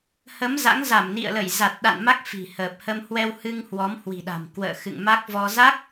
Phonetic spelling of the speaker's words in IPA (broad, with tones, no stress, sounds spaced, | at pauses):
h ə˨˦ m z a̰˧˥ ŋ z a˧˩ m n ḭ˧˨ ə̯ l ə˧˩ j z a˨˩ t̚ ɗ a̰˧˨ n m a˦˥ k̚ f i̤˨˩ h əː˨˩ p̚ h ə˧ m h w ɛ˧ w h ɨ˧ ŋ h w ɔ˨˦ m h w i̤˨˩ ɗ a̤˨˩ m k w ə̰ː˧˨ x ɨ̰˧˨ ŋ m a˦˥ k̚ v ɔ˧ z a˦˥ k̚